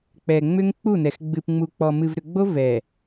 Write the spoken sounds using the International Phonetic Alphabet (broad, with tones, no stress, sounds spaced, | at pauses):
k͡p ɛ˨ ŋ͡m ʏ˦ ŋ k͡p u˦˨ n ɛ˨ x ɡ͡b ɨ˨ p ŋ͡m u˨ k͡p ɔ˨ m ɨ˨ v ɾ ʏ˨ ɡ͡b o˦ v ɛ˨